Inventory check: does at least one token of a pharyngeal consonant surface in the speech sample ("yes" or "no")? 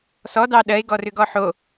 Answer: yes